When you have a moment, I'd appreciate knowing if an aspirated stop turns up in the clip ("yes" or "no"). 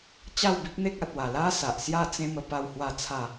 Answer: yes